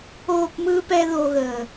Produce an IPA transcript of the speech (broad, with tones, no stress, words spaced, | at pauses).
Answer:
oː˦˨pmɯː˦ pɛ˦ðo˧ɣəː˨